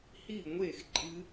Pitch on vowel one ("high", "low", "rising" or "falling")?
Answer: falling